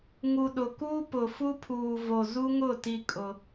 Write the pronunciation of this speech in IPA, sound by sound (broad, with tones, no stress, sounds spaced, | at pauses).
ŋ u˨ ɗ ʊ˨ k uː˦ p ʊ˨ f u˦ pʰ uː˨ v o˨ z u˦ ŋ ʊ˦˨ t i˦ kʼ ʊ˦